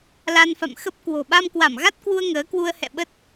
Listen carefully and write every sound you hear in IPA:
l a˧ n f a̰˧˨ m x ə˦˥ p̚ k w o̤˨˩ ɓ a˧ m k w a˧˩ m ɣ a˦˥ t̚ k w u˧ ə̯ ŋ əː˨˦ k w u˧ ə̯ h ɛ̰˧˨ ɓ ə˦˥ t̚

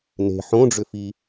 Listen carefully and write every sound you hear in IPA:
n e̤ ħ õ ɖ͡ʐ ʏ f i

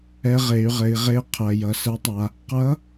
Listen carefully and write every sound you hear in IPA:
ɛ˧ ʁ e˩˧ y̯ ʁ ɘ˩˧ i̯ ʁ e˧ qʰ ɜ˩ j ʌ˩ s ɛ˧˥ tˤ a˧ | q ʌ˧˥

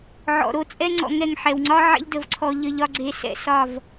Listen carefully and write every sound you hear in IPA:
ʕ ɔ̰˨ ɾ o˦ t͡sʼ ɛ˦ ŋ͡ǀ ɔ̰˧ ŋ ɛ˦˨ ŋ ħ ɛ˨ w ŋ͡ǀ ɒ˦ ʕ ɛ̰˦ ʎ d ə˨ v ǀʰ ɔ˧ ʎ ə˧ ʎ ɒ˦ ɡ͡ǀ e˧ s ɛ̰˦ s ɒ˦˨ v

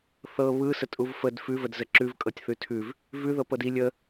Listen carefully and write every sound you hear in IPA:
θ ɤ β ɯ s ə tʼ u v f ə d f ʉ v ə d z ə ǁ ʉ v kʼ ɤ tʲ θ ʉ tʰ ʉ v | v ʉ ð ɤ p ɤ d i lʲ ə

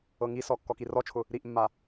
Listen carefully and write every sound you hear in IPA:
ɤ ŋ i s ɔ kː ɔ k i r ɔ t͡ʃʰ ʊ | ɾ i ʔ mː a

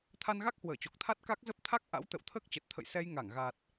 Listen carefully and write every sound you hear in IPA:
t̪ʰ a˧ n ɣ a˦˥ k̚ h w əː˧˩ t͡ɕ o˨˩ k̚ t̪ʰ a˦˥ t̚ k a˦˥ k̚ z ə˦˥ p̚ t̪ʰ a˦˥ k̚ ʔ a̰˧˥ w t̪ ə̰˧˨ w t̪ʰ əː˦˥ k̚ t͡ɕ ə˨˩ t̚ t̪ʰ ə̰˧˨ j s ɛ˧ j ŋ a˧˩ ŋ ɣ a˨˩ t̚

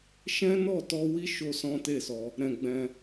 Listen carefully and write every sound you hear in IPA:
ʃ ɛ̃˦ n ɔ˦˨ t ɔ˧ w i˦ ʃ o˦ s ɔ̃˦ t e˦˨ s ɔ˧ | ɾ ɛ̃˧ ɡ͡b ɛ̃˧

